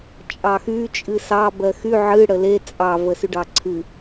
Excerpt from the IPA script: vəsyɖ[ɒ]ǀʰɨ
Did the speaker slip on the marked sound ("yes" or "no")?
yes